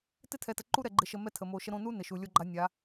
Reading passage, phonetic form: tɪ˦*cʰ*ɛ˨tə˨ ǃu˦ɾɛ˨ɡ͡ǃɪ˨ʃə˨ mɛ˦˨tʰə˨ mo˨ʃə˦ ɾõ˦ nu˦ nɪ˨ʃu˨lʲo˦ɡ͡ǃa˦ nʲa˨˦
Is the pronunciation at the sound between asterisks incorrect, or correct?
incorrect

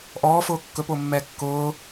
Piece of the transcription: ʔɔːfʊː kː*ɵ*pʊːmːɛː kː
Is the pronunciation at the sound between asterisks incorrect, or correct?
correct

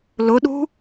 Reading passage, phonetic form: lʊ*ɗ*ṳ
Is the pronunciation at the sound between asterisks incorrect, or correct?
correct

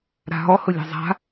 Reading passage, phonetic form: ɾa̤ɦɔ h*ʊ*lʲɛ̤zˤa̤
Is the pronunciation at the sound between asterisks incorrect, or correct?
correct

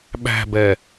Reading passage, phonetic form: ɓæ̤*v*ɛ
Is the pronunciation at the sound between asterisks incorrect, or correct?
incorrect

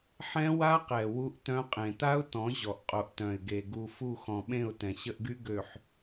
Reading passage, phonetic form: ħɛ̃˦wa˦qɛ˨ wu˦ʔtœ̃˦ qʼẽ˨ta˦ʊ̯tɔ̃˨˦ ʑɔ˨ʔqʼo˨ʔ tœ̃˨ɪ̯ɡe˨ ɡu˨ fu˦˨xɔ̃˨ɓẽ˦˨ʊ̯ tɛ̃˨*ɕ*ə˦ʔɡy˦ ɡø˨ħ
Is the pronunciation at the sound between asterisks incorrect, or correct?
correct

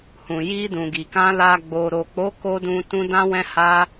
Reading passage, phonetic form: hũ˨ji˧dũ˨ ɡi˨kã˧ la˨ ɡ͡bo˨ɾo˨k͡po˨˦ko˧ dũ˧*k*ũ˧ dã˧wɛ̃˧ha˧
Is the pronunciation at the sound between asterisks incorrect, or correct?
incorrect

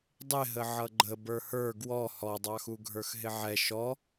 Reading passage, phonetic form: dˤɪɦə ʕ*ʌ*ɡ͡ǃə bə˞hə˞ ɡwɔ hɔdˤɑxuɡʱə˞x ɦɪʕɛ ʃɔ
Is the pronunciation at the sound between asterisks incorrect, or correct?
correct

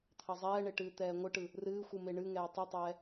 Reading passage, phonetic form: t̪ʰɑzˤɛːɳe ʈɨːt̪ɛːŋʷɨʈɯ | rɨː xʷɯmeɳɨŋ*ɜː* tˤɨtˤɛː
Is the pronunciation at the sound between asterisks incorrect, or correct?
incorrect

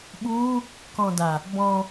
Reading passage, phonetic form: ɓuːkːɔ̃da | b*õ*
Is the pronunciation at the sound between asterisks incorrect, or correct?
incorrect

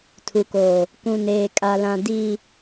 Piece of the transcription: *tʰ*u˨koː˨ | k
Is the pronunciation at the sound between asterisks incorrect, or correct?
correct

